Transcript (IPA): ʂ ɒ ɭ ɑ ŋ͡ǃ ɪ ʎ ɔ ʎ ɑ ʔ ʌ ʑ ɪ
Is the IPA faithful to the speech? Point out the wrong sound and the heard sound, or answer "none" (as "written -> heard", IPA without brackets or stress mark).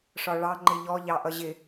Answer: none